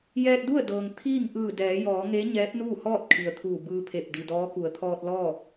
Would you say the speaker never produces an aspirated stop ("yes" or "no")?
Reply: no